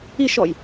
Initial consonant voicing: voiceless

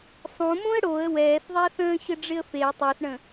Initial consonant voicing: voiceless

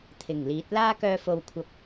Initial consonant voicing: voiceless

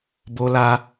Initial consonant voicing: voiced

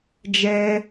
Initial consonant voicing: voiced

